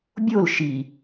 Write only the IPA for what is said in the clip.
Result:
bʲol ʃi

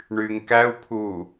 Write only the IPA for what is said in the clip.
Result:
ɳyːŋkæu̯pʰuː

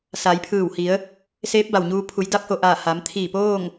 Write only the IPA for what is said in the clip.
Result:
sa˩˧jpʰɯː˧˩whi˩˧ə̯ | seː˧˥p̚ba˩wɲuː˧pʰu˩˧j da˧˥p̚ho˩ʔaː˧˩ ha˩˧mt̪ʰiː˧˩poː˥˨ŋ

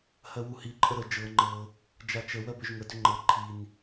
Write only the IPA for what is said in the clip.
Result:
hɜwuhi ǃʼəɾə d͡ʒɤ ŋ͡ǃɤ | d͡ʒat͡ʃə wɜbʏʒŋə dʏŋ͡ǃɤ ǃʰin

